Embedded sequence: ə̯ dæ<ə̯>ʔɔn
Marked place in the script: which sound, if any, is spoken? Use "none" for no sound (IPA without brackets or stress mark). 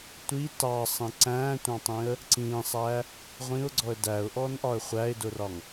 ʊ̯